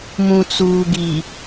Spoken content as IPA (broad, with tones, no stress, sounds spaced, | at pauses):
m ũ˨ t͡s uː˨ ɡ i˨